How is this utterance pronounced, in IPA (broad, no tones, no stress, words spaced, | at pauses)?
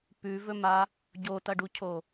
pʉvɵma | ɟotɐɖucʰo